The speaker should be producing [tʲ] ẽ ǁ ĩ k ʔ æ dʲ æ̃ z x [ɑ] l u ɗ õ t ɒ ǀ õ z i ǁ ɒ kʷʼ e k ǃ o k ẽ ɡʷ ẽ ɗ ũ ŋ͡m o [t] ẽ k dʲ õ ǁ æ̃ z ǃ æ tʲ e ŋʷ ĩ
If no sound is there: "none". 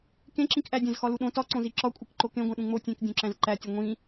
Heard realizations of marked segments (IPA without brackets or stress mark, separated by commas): k, ɒ, tʲ